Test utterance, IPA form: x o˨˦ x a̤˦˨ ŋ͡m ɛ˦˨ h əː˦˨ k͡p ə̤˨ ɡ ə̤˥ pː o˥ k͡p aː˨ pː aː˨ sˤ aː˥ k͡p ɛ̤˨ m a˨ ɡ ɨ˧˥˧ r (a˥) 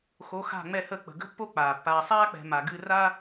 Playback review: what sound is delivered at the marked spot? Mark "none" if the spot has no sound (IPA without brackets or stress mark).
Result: a˥